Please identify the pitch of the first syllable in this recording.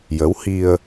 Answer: rising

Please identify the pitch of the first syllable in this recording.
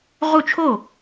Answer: falling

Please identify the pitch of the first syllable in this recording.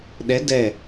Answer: rising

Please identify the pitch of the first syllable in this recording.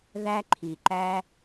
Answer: high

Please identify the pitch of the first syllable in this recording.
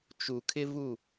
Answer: low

